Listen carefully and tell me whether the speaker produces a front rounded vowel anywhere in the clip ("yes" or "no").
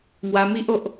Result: no